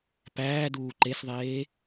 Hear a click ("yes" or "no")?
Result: yes